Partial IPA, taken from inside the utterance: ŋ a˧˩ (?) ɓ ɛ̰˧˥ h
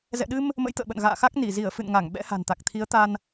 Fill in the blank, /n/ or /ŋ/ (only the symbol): ŋ